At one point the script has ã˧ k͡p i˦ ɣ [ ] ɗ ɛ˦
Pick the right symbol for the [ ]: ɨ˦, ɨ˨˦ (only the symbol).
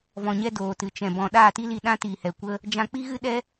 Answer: ɨ˦